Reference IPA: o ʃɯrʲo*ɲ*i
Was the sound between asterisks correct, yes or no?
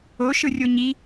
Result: yes